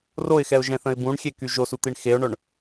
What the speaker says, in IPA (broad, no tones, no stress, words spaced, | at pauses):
roɪ̯xɛʊ̯ʒɛ̃θə̃ɪ̯ bũɳxʲeky ʒosut̪iɳ xeʊ̯ɳœɳ